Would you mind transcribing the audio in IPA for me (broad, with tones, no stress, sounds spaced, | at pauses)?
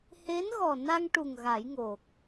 h e˧˥ n ɣ ɔ˨˩ n a˧ ŋ ʈ u˨˩ ŋ ɣ a˨˩˦ j ŋ o˨˩ k̚